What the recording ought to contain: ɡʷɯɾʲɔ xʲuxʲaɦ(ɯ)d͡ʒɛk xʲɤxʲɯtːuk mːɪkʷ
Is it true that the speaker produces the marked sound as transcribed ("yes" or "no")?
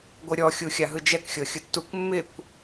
yes